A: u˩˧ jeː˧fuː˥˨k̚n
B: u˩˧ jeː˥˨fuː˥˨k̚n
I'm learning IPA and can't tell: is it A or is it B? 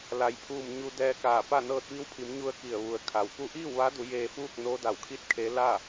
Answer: A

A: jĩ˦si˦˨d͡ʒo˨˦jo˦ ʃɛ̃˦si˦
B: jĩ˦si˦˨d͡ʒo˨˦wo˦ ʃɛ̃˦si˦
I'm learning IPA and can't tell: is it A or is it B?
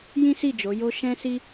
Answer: A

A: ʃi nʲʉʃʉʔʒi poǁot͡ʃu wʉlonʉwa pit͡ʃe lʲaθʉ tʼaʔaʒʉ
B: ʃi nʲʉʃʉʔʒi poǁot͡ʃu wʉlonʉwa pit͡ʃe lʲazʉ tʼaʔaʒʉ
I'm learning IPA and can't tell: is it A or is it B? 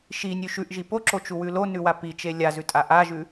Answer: B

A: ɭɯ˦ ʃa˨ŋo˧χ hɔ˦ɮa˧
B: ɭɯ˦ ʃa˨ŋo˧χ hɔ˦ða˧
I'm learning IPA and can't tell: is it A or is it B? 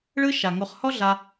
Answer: A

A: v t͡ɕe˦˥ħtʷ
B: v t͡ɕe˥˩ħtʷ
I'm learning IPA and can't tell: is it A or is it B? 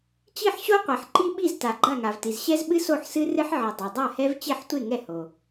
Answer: B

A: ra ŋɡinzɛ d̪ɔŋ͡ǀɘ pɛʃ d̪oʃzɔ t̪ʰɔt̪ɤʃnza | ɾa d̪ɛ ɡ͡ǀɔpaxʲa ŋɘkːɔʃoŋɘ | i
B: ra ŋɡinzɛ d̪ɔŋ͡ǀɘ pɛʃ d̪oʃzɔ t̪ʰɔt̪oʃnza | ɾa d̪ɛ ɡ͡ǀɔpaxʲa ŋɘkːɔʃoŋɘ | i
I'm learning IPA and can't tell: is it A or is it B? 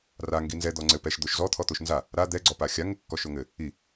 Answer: B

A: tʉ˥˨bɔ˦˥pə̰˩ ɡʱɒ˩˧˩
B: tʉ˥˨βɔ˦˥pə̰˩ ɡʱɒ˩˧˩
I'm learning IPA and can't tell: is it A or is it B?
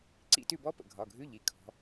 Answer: A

